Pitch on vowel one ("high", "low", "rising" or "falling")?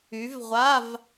rising